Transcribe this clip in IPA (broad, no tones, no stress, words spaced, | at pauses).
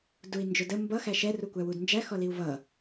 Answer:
dui̯ nd͡ʒʊdə mbʌ xæʃɛ rukʷæwudnd͡ʒæ xɔliu̯vʌ